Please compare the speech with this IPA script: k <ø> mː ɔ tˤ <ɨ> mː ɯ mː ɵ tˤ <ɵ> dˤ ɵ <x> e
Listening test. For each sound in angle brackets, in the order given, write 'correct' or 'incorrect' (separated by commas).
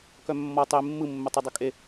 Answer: incorrect, incorrect, correct, incorrect